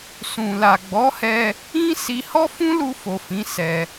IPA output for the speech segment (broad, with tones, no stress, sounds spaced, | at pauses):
s ũ˨ l a˨ ɡ͡b ɔ˨˦ h ɛ˧ | ĩ˦ s i˧ h ɔ˦ f ũ˦ l u˧ f o˨ f ĩ˨˦ s ɛ˧